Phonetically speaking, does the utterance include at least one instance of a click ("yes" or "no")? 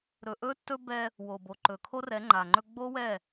yes